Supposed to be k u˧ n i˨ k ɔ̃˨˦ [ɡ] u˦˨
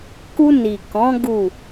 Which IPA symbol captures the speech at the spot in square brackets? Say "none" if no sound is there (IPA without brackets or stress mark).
ɡ